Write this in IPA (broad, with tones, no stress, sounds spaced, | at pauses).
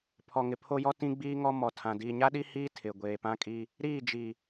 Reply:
pʰ ɔ˨ ŋ ɪ˨ pʰ o˦ j ɔ˦ t ĩ˦ ɡ͡b iː˦ ŋ ɔ˦ m ɔ˨ tʰ ã˨ d iː˨ ɲ a˦ ɗ i˦ h iː˦ tʰ ɪ˨ ɡʷ eː˨ p ã˦ kʼ i˦ | ɾ iː˦˨ d͡ʒ i˨